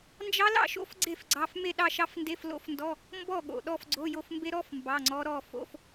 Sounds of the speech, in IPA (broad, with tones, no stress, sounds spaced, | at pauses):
n d͡ʒ ɑ˦˥ l ɑ̰˥˨ ʃ o̰˦˥ f ɡ͡ǀ e˥˨ f ɡ͡ǀ ɑ˧˥˧ f m e˥˨ ɗ ɑ˥˨ ʃ ɑ˦˥ f n d e˧˥˧ f l o̰˦˥ f n d ɔ˧˥˧ | m b ɔ˥˨ ɠ o̰˩ ɗ ɔ˥˨ f ɡ͡ǀ o˧˥˧ j o˥˨ f m b e˦˥ ɾ ɔ˧˥˧ f m b ɑ˧˥˧ ŋ͡ǀ ɔ˦˥ ɾ ɔ˥˨ f o̰˧˥˧ f